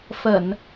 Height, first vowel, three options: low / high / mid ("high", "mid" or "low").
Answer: mid